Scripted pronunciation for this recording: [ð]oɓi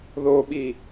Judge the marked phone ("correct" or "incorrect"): correct